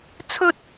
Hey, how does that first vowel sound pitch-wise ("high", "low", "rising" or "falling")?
high